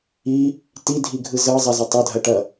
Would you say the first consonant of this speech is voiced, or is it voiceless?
voiceless